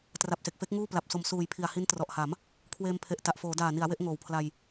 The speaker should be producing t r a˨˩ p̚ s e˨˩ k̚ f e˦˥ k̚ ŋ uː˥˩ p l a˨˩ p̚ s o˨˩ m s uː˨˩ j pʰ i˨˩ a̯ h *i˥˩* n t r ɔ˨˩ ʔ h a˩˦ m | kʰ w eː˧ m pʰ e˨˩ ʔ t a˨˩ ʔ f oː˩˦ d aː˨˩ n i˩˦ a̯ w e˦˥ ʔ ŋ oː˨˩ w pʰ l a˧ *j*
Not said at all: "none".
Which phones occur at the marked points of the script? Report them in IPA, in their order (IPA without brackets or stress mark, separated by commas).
i˦˥, j